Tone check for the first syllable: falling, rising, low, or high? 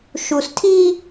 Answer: low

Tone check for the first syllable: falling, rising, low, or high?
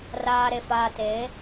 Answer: low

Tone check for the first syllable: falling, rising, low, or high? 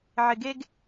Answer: high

